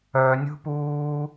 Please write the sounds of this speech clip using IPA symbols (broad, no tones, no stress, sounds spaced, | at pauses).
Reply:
œ nʲ ṳ p uː